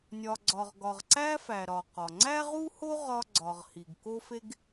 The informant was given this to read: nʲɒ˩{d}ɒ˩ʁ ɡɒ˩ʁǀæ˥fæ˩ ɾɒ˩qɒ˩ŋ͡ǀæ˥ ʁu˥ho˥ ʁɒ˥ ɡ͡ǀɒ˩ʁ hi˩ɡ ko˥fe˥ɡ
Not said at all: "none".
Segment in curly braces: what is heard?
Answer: ɡ͡ǀ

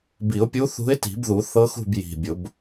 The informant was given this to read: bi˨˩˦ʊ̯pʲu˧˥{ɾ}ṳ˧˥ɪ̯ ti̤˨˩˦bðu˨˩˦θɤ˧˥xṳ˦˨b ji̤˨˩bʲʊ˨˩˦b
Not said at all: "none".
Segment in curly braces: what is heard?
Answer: θ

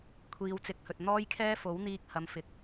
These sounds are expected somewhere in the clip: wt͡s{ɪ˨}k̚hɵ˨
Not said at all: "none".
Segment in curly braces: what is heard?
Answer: ɪ˨˥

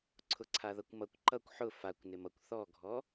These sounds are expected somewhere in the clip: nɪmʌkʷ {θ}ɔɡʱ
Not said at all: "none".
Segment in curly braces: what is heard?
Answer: θ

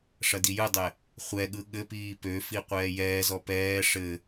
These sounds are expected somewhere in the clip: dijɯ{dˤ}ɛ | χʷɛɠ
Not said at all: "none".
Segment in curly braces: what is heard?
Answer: dˤ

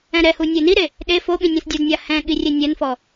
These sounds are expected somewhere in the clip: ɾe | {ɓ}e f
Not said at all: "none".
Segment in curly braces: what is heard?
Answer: ɗ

